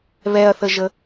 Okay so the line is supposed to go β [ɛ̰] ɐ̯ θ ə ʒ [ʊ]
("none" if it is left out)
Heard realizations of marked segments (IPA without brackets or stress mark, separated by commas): ɛ, ə